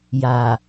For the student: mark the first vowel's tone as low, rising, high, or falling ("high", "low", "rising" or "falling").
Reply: low